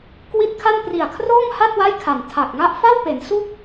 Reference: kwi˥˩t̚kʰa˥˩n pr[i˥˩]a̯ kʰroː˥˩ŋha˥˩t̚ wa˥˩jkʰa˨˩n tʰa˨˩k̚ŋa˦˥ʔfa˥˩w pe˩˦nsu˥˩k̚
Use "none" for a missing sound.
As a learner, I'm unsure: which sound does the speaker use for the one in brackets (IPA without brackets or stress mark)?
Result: i˨˩